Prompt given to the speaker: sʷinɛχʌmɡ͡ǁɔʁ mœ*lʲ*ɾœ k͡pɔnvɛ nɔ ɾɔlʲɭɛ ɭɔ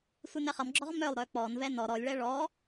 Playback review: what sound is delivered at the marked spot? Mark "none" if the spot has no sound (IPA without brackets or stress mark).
lˠ